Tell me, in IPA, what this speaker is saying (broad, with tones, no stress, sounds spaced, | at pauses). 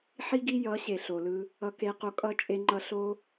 ħ i˦ ɡ i˦ j ʌ˨˦ ɕ e˨ ɬ o˨ l ɯ˧ | ʌ˧ k e˧ q o˧ kʼ ʌ˦ t͡ʃʼ e˧ ŋ͡ǃ ʌ˧ ɬ o˦